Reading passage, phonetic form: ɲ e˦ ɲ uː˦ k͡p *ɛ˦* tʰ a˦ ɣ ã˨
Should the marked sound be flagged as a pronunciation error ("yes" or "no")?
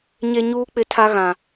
yes